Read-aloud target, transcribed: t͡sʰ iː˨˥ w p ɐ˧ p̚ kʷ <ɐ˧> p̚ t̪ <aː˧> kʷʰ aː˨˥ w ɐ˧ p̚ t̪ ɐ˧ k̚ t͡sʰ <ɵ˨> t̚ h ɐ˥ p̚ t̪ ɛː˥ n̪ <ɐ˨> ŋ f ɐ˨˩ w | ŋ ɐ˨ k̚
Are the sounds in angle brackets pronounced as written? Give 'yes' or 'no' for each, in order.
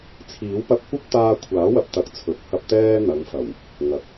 no, yes, no, no

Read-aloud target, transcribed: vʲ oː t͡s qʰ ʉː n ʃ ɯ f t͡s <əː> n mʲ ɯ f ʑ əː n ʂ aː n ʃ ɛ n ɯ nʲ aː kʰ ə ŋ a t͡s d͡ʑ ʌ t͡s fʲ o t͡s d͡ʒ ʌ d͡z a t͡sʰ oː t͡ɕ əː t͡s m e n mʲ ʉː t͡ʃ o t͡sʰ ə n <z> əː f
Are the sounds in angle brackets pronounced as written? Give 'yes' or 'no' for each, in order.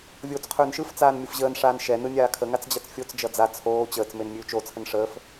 no, no

